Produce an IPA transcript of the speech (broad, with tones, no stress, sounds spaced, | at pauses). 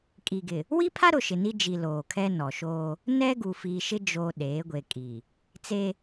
kʼ i˨ ɡ ɪ˨ | w i˦ pʰ a˦ ɾ ʊ˨ ʃ ɪ˨ n i˦ d͡ʒ i˨ l oː˨ kʰ ɛ˦ n ɔ˨ ʃ oː˦ | n ɛ˦ ɡ u˨ f iː˨ ʃ ɪ˦ d͡ʒ oː˨ ɗ eː˨˦ ɡʷ e˨ kʼ i˨ | t͡s e˦